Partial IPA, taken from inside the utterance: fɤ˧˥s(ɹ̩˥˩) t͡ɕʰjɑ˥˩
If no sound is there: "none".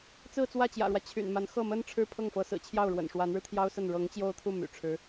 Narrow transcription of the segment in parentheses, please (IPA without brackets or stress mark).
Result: ɹ̩˨˩